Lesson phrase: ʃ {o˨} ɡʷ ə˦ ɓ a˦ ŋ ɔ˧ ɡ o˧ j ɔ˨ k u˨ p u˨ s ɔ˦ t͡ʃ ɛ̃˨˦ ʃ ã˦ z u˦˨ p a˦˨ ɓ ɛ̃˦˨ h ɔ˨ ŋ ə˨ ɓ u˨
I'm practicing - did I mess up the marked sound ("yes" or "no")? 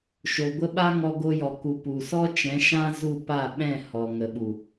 no